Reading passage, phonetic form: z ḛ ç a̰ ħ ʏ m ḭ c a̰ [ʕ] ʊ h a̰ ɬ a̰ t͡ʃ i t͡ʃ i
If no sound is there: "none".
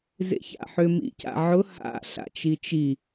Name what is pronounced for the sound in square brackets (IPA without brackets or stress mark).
ʕ